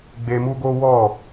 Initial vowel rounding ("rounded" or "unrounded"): unrounded